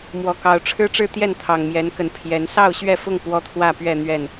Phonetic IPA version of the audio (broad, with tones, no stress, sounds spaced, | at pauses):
m w ɔ˨˦ k ɑ˨˦ ʊ̯ ʈ͡ʂʰ ɻ̩˦ ʈ͡ʂ ɻ̩˥˨ t̪ j ɛ˥˨ n t̪ʰ ɑ˨˩ ŋ m j ɛ˨˦ n k ə˨˦ n pʰ j ɛ˨˦ n s ɑ˥˨ ʊ̯ ɕ ɥ ɛ˥˨ f ʊ˥˨ ŋ p w ɔ˦ t̪ʰ w ä˥˨ p ɥ ɛ˥˨ n̪ ɥ ɛ˥˨ n